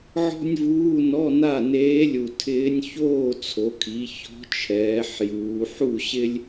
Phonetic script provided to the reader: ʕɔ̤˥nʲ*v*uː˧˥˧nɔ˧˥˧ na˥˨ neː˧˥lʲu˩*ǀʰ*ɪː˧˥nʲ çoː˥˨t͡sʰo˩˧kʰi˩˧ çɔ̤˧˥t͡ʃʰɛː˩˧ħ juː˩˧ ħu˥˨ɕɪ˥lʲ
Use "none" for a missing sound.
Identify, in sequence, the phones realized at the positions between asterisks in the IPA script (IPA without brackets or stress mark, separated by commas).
v, tʰ